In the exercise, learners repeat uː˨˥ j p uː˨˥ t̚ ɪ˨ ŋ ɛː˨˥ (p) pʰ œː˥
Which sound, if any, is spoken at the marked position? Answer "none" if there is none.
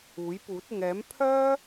m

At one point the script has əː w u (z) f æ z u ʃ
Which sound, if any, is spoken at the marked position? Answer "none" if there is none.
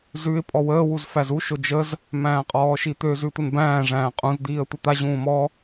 z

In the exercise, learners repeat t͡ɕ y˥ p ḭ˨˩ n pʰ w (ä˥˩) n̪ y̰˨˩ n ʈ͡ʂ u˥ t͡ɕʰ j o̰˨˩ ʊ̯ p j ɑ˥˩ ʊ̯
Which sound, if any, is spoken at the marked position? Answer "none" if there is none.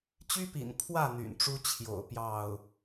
ä˥˩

